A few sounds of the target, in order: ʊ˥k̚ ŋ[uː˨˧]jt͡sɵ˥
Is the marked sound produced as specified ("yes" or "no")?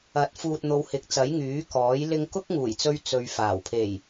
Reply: no